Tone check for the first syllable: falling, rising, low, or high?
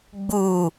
low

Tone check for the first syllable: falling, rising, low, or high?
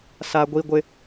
high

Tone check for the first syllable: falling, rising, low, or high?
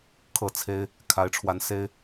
falling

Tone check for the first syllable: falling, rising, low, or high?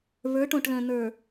rising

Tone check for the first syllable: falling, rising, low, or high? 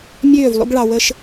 falling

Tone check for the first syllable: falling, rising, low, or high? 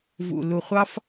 low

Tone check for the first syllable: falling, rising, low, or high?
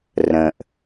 low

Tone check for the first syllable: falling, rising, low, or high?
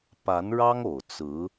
rising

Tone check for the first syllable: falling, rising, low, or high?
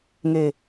low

